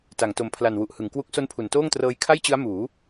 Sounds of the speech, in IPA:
ta˩˦ŋto˨˩mpʰla˨˩n wu˨˩ʔhɯ˩˦ŋkwu˦˥k̚ so˦˥npʰu˩˦ntoː˥˩ŋtrɤː˧j kʰa˥˩jt͡ɕɯ˦˥a̯ muː˩˦

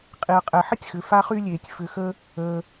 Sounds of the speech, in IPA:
qʼi˩ɐ̯qʼɛ˩ħə˥tʲxʏ˩ fa˦χy˦lʲeː˩tʲ fʏ˨xə˦ | əː˨

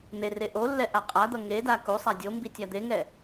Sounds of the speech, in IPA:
n̪ere ʔolːɛ ʔaqʼad̪ʌ ŋeda ku sˤadʲombi tʲad̪eŋɛ

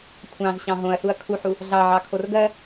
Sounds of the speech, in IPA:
kʷʰɑ̃zɕɑ̃ ɦõɐ̯suɐ̯ kʰuħu | ɮɑʕɑkʰor ɡɜ

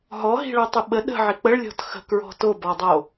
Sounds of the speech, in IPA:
ɦɔɦi̤ɭotˤɨ ɓə ɗə̤ʕɪ k͡pəɭlʲɔ̤t xə̤kɹɔ̤ tobɔdˤo

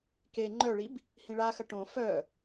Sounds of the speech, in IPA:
ke ŋ͡ǃœɭib | hĩɭaxɐ ʈõ fœ

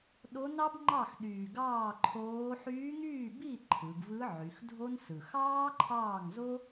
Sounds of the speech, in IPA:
ɗo˧˥nɑ˥bŋ͡ǃɑ˥˩xɗyː˨˩ ɡɑː˥˩ǃʰoː˧˥ ħyː˧˥ŋyː˥˩bi˥˩ ǃʰɯ˩˧ɡvɯ˧˥ ʕy˩˧xdʱo˥nsɯ˨˩ xɑː˥ǃʰɑː˥˩ŋzo˥

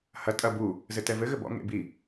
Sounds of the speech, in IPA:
hɐ tʼɐ bu | zɘtɛvɘ ɣɘbɔ̰ ŋḛ bi

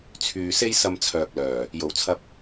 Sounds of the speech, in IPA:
t͡sʰyː˨ se˥jsɐ˧mt͡sʰœː˨k̚lœː˨˩ | jo˨˩wt͡sʰɐ˧p̚

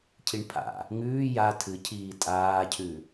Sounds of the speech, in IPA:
cʰiɳpʰa̰ | ŋʉː ja tʰɨcʰiː tʼaːcʰʉ

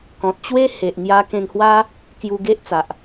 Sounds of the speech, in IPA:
kɔ̃˨t̚t͡ɕwe˦ he˨ʔŋja˧kẽ˧ŋhwa˦ | kju˧ɡe˦ʔt͡sa˨ʔ

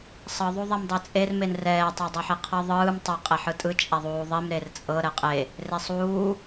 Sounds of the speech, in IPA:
sˤɤ ðˤuðˤɛmdˤɛt͡sʼer menrɛː tˤadˤɤħiqʰɤ ðˤɯːm tˤa qʼeħɯtʼɯ t͡ʃʼaðˤuːðˤim ɾert͡sʼɤ ɾɛqʼe | resˤuː

